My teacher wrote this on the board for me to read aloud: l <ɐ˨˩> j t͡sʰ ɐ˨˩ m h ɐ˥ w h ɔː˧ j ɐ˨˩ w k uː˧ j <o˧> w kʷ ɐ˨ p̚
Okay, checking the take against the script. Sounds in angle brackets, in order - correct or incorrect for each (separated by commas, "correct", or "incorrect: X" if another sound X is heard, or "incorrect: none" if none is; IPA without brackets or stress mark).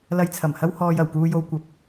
incorrect: ɐ˧, correct